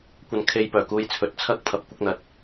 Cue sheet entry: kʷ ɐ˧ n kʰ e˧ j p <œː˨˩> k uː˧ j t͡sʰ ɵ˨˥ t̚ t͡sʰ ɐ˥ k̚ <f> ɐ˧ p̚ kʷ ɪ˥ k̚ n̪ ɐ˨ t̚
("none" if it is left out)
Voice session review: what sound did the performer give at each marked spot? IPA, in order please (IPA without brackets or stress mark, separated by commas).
œː˨˩, pʰ